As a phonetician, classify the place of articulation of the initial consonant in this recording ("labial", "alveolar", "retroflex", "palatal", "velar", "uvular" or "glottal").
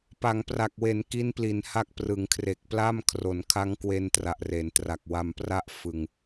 labial